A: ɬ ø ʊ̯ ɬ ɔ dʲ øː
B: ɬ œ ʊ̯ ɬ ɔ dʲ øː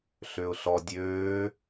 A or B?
A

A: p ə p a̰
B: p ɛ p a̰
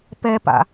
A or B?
B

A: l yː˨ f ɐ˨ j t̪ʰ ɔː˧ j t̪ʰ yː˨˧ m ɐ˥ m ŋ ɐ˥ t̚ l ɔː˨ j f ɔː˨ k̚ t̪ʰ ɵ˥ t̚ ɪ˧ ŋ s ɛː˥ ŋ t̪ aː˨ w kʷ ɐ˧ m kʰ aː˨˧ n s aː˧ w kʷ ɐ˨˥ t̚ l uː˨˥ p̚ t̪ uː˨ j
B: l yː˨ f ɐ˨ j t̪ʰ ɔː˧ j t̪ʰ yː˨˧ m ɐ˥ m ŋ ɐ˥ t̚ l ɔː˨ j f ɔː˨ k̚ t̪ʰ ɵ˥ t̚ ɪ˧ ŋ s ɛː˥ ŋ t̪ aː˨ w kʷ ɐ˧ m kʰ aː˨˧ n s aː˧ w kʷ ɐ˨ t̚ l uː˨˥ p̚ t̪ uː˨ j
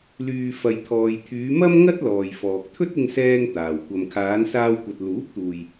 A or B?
B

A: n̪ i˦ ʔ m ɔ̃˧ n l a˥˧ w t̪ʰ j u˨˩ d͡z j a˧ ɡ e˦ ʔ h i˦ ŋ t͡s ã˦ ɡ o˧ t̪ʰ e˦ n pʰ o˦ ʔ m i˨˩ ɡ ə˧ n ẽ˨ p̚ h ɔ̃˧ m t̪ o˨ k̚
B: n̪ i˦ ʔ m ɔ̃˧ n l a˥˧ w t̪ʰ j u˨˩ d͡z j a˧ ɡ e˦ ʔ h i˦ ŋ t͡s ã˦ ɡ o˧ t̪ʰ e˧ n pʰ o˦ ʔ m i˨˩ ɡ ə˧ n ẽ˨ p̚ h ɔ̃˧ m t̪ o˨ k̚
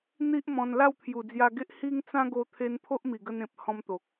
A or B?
B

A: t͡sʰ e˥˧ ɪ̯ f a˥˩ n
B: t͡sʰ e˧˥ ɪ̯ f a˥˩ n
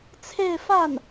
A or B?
A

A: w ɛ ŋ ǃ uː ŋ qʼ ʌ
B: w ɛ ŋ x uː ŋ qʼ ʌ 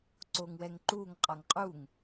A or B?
A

